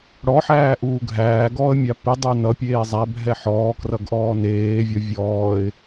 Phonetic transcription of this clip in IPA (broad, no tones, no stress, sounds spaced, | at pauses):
ɽ ɔ ħ æː ʔ uː ɡʱ æː ɡ ɔː ə̯ mʲ a p i dˤ ə˞ n ʌ pʲ eː zˤ æ bʱ ɛ ħ ɔː k r ʌ ɡ ʔ ɔː n eː vʲ ɔ vʲ ɔː ɪ̯